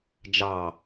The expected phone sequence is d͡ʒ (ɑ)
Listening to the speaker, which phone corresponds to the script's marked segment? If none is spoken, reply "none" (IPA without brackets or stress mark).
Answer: ɑ